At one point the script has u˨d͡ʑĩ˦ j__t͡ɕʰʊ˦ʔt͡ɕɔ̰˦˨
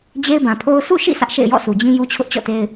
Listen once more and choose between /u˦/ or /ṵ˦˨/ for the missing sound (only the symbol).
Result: u˦